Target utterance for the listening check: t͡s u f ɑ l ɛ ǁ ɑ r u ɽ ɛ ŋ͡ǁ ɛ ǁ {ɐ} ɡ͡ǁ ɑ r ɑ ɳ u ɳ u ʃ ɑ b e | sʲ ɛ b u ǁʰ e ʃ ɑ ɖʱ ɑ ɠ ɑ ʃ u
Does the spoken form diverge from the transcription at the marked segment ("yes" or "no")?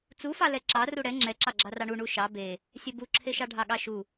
yes